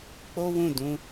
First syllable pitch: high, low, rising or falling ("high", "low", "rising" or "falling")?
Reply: high